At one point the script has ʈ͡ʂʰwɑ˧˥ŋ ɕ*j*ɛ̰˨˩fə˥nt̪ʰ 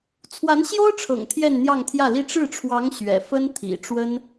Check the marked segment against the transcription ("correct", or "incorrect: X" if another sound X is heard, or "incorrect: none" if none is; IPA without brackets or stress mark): incorrect: ɥ